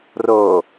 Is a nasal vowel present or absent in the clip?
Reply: absent